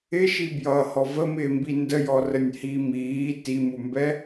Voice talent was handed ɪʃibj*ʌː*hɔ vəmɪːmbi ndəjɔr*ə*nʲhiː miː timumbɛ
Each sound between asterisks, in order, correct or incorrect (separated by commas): correct, correct